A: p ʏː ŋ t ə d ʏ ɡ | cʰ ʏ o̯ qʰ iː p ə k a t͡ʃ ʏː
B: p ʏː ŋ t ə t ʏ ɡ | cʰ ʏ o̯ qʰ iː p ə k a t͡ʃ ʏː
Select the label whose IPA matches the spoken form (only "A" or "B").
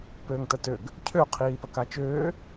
B